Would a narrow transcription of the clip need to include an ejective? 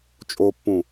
yes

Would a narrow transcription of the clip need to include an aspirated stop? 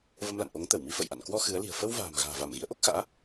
no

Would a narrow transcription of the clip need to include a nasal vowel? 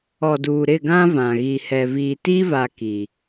yes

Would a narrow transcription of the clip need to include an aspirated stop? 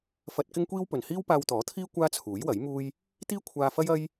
yes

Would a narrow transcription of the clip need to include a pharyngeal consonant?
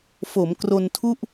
no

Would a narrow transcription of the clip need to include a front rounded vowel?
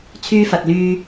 yes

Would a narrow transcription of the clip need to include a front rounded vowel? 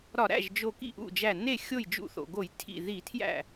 no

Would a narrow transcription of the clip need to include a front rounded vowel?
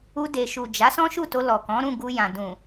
no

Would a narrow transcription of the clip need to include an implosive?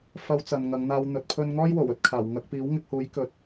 no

